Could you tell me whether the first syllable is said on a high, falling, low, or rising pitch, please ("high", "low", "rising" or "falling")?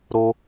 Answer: high